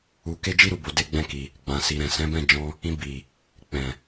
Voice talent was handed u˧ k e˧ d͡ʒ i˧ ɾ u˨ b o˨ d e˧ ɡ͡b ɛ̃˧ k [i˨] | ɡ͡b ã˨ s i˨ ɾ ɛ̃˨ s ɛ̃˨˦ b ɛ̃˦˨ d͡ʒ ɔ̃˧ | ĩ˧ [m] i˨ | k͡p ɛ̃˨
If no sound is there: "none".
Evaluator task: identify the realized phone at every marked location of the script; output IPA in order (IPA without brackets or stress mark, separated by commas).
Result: i˨, b